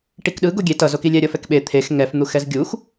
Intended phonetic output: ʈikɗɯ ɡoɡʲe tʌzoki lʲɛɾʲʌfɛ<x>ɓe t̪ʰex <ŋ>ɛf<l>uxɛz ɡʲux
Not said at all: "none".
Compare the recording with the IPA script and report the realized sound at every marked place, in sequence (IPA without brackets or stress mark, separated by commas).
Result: k, ŋ, n̪